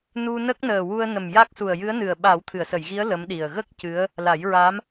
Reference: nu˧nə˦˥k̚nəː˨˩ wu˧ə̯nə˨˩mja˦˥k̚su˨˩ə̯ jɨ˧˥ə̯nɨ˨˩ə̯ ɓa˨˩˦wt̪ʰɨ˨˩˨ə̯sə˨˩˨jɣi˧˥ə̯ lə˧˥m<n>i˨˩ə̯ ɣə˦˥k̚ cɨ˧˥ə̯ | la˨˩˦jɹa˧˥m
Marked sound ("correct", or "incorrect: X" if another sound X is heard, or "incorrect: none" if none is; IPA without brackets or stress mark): incorrect: ɗ